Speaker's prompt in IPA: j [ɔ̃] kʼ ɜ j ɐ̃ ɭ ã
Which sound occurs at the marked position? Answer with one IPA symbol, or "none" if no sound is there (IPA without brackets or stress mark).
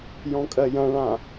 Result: ɔ̃